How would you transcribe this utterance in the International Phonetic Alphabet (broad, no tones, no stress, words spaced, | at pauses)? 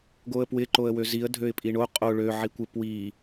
ɡoə̯pwɪ ǃoə̯wøziə̯ dʱøɪ̯pʼiɳo qʼo ɭø ʕikʷɪ pwi